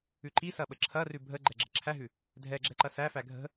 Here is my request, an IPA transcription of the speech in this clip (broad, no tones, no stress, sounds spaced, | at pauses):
ʉ ǃ i s ɐ ɓ ə ǁʰ ɐ r ʉ bʱ ə ɡ͡ǃ ɛ ɡ͡ǁ ə̤ ǁʰ æ ɦ ʉ | dʱ ɛ ɡ͡ǁ ɛ ǃ ɐ s æ f æ ɡʱ ə̤